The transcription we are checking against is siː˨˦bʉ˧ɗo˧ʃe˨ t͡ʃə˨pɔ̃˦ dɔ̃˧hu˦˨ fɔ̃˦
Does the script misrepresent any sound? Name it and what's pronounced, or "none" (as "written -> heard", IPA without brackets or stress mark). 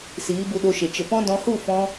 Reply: ʉ˧ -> u˧